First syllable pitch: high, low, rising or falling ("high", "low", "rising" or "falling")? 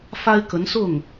high